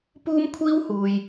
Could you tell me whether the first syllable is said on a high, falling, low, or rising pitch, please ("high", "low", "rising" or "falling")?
high